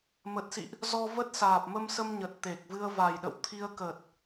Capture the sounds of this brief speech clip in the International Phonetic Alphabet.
mə˨˩t̚sḭ˧˨ʔ | zɔ˧və˦˥t̚saː˨˩p̚ mə˧msə˧mɲə˨˩t̚ t̪e˨˩k̚vɨ˧ə̯ va˨˩jɗə̰˧˨wt̪ʰi˧ə̯ kə˨˩t̚

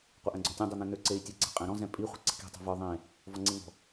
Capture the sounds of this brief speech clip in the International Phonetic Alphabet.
qʷaʔɛ̃ɡ͡ǀɔ̤tʲɔ̃ dˤin̪ẽn̪ø ǀei̯tʲɛɡ͡ǀɛ̤ qʼɛ̃ɾɔ̃ zɛ̃pʼi χʷi̤ǀi̤ki̤ tˤɛ̤və˞ ðˤẽ | vɔŋ͡ǀeŋɔ̤

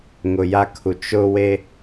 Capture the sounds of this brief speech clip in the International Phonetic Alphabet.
ŋʊ˨ja˦kʰu˨ t͡ʃʊ˦ we˦

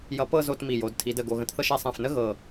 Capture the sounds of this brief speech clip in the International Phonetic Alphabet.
jʌ˧pɤ˥˧ zo˥˧tmi˧˩jo˩˧d tʰi˩˧də˧˩ ɡo˧˩ɣə̃˧tθɤ˥˧ʃ ɛ˩˧sˤɛ̃˧˩fnə˥ ɣɤ˧˩

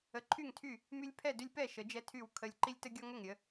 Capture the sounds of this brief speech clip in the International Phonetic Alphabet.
ə˨˦ǃʰy˥˨ŋtʰy˥˨ | my˦lʲpʰɛ˥˨dʏ˦lʲpɛ˥˨ ʃə˨˦d͡ʒɛ˦tʰy˥˨w kʰə˦lʲ ǃi˦lʲtə˦ɡʲɔ˦ ŋʏ˥˨ŋ ɾʲə˨˦

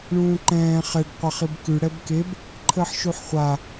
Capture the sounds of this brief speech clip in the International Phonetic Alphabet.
ɳũːǃɛ̃ː χɛɖ qʷaχibkʉ ɽɛbkeb | ǃʰəːħʃuħχʷa

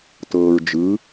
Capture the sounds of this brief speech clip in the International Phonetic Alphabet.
tɤːɹd͡ʒɯ

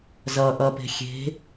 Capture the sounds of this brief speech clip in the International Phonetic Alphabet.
zʌʔʌ pe̤xʲe̤

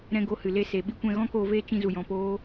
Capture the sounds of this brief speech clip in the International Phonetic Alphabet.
ɾɛ̃˧ɡo˧hɨ˨ le˧se˨ ɓi˦kʷɛ̃˧ ɣɔ̃˦koː˧veː˦ t͡ʃĩ˧zu˨jɔ̃˨ poː˦

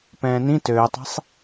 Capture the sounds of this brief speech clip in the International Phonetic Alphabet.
pɛ̃ːnĩ tøːtˤɛ̤sˤ

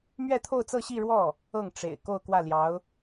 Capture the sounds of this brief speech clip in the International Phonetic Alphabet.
mɥɛ˥˧t̪ʰo˥˧ʊ̯t͡sɤ˥˧ɕi˥˧ ɻwɔ˥˩ | ɤ˥˩ŋ ʈ͡ʂḛ˨˩ɪ̯ ko˥˧ʊ̯kwä˥˩ljɑ˧˥ʊ̯

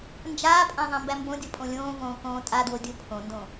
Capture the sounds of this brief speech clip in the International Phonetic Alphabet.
nd͡ʒaːpʼã ðˤãmbæmbõdʲɤ pʼõlʲõːvõː kõːtʼadwo dʲopʰõndõ

